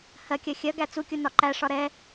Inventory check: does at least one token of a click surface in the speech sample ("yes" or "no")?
yes